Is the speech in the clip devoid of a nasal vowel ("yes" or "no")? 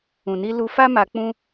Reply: no